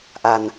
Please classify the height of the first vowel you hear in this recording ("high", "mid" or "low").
low